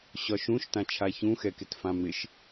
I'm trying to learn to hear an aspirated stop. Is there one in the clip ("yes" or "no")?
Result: yes